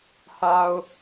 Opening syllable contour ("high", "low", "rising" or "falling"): low